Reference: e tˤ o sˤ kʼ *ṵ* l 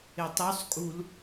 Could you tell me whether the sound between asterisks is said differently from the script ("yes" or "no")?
yes